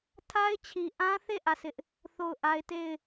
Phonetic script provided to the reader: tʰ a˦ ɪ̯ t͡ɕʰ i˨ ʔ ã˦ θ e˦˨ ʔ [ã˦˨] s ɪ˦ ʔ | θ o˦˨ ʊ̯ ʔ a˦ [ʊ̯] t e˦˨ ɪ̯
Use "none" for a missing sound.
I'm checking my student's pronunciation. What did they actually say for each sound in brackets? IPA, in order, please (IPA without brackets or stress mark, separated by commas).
ä˦˨, ɪ̯